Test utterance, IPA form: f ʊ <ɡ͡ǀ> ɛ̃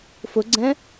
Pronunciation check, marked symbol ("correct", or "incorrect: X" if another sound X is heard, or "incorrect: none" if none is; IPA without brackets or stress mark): correct